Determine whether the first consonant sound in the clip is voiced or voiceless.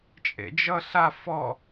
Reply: voiceless